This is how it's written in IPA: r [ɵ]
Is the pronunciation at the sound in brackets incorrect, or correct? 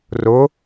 incorrect: ʊ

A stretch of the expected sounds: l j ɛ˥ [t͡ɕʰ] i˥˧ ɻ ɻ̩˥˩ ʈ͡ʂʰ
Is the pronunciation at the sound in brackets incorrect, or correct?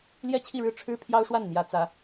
correct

